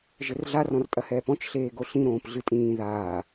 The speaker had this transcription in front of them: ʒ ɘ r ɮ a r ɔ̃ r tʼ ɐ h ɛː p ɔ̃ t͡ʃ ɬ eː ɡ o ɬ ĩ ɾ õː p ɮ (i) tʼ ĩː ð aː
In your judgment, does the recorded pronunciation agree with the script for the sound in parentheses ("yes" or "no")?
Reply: no